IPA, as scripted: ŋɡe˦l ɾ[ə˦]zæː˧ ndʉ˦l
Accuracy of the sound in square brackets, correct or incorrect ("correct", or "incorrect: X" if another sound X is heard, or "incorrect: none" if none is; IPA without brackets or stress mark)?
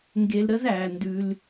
correct